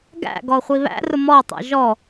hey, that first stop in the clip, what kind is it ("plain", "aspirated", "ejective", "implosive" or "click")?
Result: plain